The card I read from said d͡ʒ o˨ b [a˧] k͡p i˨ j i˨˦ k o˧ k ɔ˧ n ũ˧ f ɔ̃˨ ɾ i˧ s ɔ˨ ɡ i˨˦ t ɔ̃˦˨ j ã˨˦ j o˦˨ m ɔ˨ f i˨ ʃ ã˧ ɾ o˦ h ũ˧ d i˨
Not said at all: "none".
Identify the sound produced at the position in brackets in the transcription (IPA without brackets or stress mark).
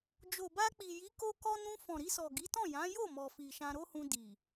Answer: a˧